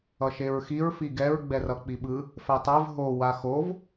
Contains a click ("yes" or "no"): no